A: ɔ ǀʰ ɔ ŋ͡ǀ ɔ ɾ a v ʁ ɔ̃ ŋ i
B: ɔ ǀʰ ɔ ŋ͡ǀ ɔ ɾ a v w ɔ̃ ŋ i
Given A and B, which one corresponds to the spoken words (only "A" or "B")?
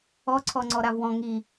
B